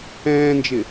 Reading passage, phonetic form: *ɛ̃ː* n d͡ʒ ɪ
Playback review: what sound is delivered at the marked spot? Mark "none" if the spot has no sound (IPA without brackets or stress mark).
ɛ̃ː